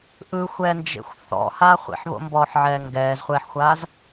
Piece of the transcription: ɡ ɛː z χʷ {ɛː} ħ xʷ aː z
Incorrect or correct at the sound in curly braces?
correct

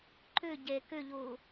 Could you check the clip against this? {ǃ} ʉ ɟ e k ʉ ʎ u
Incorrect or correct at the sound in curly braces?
correct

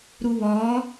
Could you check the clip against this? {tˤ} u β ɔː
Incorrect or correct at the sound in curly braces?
incorrect: ɾ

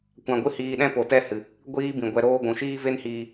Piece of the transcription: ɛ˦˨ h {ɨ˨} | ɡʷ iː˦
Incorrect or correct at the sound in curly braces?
correct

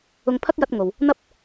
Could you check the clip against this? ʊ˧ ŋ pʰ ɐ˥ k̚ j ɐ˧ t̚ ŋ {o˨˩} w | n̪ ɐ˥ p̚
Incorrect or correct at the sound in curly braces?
incorrect: o˨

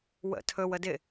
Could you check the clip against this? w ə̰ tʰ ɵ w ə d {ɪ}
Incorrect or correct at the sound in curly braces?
correct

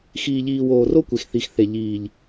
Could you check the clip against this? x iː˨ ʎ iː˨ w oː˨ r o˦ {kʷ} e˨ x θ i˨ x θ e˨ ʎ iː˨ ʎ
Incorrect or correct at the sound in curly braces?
correct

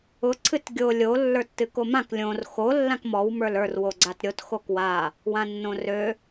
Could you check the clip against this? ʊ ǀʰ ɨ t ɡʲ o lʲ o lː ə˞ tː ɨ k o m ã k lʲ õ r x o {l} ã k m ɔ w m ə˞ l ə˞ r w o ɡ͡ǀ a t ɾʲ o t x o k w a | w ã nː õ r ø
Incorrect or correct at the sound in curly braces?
incorrect: lː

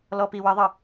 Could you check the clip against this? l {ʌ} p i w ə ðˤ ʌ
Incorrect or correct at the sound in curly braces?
incorrect: ɔ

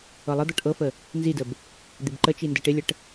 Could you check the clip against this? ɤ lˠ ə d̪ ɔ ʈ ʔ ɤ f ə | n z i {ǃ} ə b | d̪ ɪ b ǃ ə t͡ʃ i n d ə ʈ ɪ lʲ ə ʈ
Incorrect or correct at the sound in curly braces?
incorrect: d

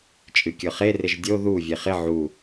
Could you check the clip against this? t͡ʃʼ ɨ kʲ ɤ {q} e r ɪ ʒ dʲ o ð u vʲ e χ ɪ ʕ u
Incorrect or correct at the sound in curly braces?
incorrect: χ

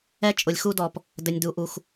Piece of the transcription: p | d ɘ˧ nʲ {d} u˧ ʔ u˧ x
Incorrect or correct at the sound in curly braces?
correct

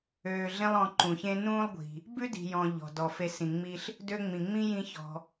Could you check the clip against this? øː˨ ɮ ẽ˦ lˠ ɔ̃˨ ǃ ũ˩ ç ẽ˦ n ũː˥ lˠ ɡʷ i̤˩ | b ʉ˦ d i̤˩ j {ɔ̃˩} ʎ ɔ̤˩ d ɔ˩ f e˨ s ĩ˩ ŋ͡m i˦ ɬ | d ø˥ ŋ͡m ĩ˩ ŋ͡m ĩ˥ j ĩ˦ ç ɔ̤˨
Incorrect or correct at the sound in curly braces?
correct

